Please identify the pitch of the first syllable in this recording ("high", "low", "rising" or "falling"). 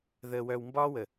low